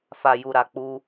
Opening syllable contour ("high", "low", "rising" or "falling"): low